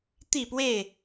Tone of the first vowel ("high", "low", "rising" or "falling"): falling